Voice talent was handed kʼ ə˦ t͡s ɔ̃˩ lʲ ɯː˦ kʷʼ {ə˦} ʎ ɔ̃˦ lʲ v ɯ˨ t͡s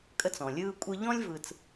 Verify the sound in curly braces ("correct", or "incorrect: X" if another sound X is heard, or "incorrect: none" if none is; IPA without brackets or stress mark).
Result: incorrect: ɯ˦